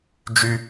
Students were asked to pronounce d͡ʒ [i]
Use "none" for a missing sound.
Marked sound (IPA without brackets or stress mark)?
y